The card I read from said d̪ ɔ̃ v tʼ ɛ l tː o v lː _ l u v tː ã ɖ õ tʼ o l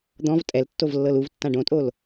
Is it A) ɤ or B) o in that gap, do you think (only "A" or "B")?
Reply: A